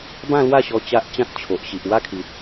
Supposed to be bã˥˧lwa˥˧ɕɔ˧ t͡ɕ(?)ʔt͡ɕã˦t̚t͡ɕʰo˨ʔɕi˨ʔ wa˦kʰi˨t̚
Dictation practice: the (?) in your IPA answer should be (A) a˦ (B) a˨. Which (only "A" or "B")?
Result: A